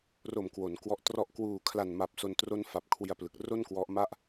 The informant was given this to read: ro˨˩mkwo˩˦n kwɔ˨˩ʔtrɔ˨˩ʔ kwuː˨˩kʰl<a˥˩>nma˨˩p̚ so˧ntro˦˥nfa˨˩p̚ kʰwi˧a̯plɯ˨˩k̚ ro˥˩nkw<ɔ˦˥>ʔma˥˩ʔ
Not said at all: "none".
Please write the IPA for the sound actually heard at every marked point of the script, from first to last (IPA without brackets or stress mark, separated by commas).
a˨˩, ɔ˦˥